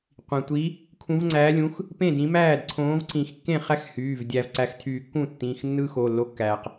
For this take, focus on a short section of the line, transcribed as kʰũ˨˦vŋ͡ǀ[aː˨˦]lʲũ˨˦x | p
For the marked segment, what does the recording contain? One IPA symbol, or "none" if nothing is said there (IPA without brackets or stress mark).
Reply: æː˨˦